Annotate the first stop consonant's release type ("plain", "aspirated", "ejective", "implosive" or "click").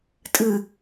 ejective